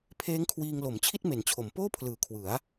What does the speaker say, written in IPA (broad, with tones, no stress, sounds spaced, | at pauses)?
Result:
pʰ eː˦˥ ŋ kʰ w iː˧ ŋ l o˩˦ m t͡ɕʰ i˥˩ t̚ m e˩˦ n t͡ɕʰ o˩˦ m p oː˥˩ pʰ l ɯː˨˩ kʰ w ɯ˩˦ a̯